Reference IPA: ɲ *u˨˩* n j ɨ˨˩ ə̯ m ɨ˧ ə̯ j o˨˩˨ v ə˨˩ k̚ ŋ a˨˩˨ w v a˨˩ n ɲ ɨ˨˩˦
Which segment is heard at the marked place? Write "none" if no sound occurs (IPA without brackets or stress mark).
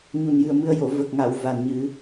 u˨˩